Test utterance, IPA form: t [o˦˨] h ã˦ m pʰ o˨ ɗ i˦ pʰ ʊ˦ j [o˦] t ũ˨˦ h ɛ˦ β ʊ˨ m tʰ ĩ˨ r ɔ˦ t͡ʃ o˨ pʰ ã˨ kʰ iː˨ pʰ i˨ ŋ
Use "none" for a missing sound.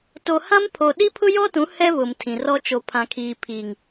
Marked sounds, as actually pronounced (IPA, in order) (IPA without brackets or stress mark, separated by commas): o˨, ɔ˦